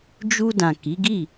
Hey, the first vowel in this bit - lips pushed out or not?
yes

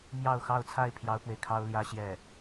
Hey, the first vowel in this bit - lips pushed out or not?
no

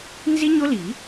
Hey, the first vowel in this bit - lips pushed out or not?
no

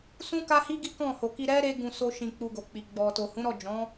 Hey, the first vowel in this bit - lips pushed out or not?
yes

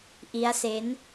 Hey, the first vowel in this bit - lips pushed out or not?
no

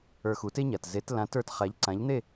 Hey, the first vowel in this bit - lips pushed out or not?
no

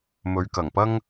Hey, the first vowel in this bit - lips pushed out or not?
yes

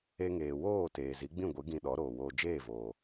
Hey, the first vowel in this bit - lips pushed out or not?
no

